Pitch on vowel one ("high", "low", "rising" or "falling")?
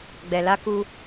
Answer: low